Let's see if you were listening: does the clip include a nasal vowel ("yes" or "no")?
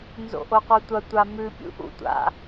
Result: no